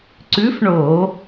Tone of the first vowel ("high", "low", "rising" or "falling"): rising